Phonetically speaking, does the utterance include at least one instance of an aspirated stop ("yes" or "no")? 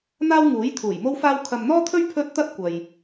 yes